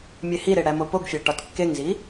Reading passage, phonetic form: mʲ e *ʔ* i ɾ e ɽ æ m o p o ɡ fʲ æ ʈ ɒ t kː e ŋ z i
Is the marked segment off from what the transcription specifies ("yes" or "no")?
yes